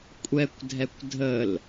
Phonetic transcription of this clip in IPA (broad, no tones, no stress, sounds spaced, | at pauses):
kʷʼ ɛ kʷ dʱ ɛ kʷ dʱ ə l